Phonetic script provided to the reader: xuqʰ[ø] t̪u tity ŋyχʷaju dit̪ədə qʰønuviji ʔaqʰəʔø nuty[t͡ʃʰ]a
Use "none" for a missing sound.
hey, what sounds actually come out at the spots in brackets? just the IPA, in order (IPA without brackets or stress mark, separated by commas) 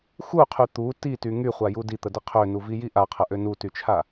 y, t͡ʃʰ